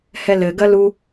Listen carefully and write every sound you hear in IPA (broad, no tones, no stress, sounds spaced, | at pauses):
h ɛ l ɘ ɡ ɐ l u